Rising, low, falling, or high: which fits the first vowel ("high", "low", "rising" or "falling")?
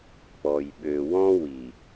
low